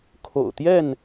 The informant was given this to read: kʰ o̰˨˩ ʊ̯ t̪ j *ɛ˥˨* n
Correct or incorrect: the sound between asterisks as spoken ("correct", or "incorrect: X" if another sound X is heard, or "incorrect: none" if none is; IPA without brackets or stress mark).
correct